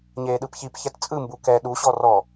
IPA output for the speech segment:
ɲ eː ɗ ɯ p ç i p ç ɛ t t͡sʼ ɯ m b u k ɛ ɗ u ɕ ɔ r ɔ

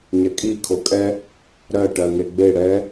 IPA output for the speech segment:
ɲ ɛ kʼ i kʰ o kʼ ɛ | ɾ ɜ ʈ ɜ ŋ e ɡ͡b e ɽ ɛ

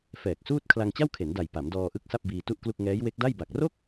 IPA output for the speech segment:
f ɛː˨˩ k̚ s uː˥˩ t̚ kʰ l a˧ ŋ t͡ɕ a˥˩ w kʰ e˩˦ n d a˨˩ j p a˩˦ m d ɔː˧ ʔ ɯ˦˥ k̚ s a˥˩ p̚ b iː˧ t u˥˩ ʔ k l u˥˩ k̚ ŋ ɛː˦˥ j w e˦˥ k̚ d a˥˩ j b a˨˩ k̚ r o˥˩ k̚

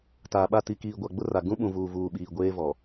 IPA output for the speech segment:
t aː˨ ɓ a˦˨ t i˨ k iː˨ ɡʷ a˨ ɡ͡b ʊ˦ r a˨ ɡ ũ˦ ɓ ũ˨ v uː˨ v uː˨ ɓ iː˨ ɡʷ eː˦ v ɔ˨

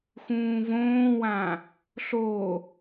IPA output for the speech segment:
x ũː v õː w ã | ɬ o

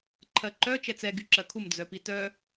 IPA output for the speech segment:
ǃʰ ɜ ǃ œ t͡ʃ ɛ t͡s ɛ ɡ y ǁ ɜ kʰ u m d͡z œ p i t œ

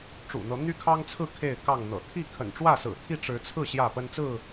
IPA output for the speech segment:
ʈ͡ʂ ṵ˨˩ n̪ ɤ˨˦ n̪ y˦ kʰ ɑ˦ ŋ t͡sʰ ɹ̩˥˨ kʰ e˥˨ ɪ̯ k ɑ˥˨ ŋ n̪ ɤ̰˨˩ t̪ʰ i˥˨ kʰ ə̰˨˩ n ʈ͡ʂ w ä˥˨ s ɹ̩˨˩ t̪ʰ i˥˨ ʈ͡ʂ ɻ̩˨˦ t͡sʰ ɹ̩˥˨ ɕ j ä˥˨ p ə˦ n t͡s ɹ̩˥˨

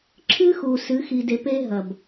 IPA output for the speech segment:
ǁʰ ɨ˦ x u˨ s ɨ˨˦ x i˨ d e˨ p e˦ ɦ ɐ˨ b

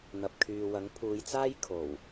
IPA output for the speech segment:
n̪ ɐ˨ p̚ kʰ yː˨ w ɐ˨˥ ŋ pʰ uː˨˧ j t͡s aː˥ j kʰ o˨˩ w

